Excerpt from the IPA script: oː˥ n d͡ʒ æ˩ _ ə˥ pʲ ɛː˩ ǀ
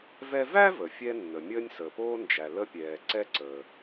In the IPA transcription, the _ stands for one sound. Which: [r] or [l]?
l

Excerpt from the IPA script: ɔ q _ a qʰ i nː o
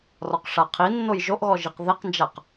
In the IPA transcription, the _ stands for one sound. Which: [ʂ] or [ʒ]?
ʂ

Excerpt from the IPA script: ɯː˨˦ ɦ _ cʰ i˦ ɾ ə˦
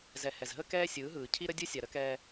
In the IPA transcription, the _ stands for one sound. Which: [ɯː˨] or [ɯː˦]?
ɯː˨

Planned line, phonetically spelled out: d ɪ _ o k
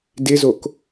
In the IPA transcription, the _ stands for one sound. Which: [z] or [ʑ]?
z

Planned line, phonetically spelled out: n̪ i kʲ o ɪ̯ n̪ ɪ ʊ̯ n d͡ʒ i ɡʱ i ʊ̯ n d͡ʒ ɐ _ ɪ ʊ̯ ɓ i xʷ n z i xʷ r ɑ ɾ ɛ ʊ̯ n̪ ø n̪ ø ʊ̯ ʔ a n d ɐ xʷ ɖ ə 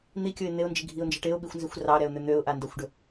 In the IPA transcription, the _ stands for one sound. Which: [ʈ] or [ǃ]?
ʈ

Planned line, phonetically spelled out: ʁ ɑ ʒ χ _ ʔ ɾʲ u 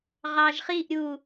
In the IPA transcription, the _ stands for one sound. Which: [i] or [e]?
i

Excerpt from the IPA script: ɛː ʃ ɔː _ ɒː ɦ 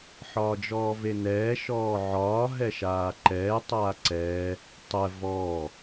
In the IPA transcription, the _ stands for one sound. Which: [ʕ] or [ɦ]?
ʕ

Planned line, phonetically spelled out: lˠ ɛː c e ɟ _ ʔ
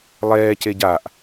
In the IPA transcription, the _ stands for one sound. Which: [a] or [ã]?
a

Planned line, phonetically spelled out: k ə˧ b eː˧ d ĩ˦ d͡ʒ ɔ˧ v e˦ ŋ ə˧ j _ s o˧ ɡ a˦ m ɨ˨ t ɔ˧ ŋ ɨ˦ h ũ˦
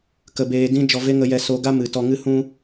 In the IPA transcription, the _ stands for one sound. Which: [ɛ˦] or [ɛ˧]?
ɛ˧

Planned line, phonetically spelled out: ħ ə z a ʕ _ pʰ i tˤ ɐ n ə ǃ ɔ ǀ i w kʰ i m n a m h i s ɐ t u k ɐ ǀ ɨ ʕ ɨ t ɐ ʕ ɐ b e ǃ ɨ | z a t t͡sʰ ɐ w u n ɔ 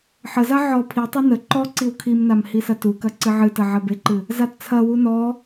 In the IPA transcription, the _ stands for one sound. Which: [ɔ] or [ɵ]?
ɔ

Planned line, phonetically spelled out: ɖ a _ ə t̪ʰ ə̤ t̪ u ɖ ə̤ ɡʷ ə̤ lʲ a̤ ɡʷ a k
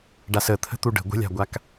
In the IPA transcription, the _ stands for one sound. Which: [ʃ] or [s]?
s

